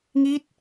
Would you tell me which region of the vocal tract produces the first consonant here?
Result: velum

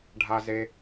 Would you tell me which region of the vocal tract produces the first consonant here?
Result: retroflex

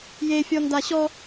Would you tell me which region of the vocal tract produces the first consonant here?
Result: palate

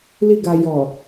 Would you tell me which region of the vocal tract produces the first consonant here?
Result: tongue tip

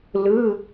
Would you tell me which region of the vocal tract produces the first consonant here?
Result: tongue tip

